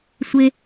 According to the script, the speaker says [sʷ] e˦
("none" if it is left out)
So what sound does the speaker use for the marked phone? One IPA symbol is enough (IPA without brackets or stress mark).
sʷ